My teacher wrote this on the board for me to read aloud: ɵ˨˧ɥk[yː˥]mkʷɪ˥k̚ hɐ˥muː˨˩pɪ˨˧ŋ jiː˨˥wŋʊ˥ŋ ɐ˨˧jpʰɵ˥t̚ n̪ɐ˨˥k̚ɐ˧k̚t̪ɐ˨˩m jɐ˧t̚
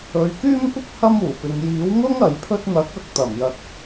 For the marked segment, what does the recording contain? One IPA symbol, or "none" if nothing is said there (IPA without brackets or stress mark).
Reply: yː˥